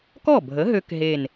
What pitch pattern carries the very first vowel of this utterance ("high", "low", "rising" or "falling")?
falling